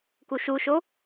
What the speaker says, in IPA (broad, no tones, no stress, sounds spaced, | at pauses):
k u ʃ u ʃ o